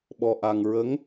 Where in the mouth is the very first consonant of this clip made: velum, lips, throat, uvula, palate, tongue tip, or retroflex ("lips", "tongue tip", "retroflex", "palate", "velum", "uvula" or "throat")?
lips